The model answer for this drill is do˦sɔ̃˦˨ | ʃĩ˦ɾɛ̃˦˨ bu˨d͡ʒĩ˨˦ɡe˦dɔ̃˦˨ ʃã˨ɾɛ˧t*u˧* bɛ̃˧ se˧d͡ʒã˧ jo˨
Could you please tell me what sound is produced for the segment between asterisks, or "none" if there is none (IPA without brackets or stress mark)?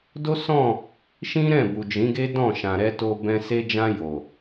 o˧